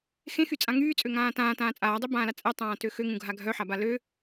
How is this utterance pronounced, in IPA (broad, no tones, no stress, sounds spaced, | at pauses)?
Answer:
x ẽ x y t͡sʼ ã ŋ yː t͡sʼ ø ŋ ãː t ãː t ãː t͡sʼ aː dˤ ø b ãː l a t͡sʼ ɛ tˤ ãː t ø x ø ŋ ũ ɡʱ a ɡʱ œ ħ a b a l ø